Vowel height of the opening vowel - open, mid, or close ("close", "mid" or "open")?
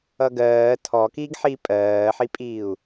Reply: mid